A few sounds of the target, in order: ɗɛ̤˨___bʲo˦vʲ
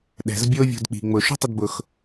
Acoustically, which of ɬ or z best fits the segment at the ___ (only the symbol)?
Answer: z